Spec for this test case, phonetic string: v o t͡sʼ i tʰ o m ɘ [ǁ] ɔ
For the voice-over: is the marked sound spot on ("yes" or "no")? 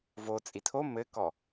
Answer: no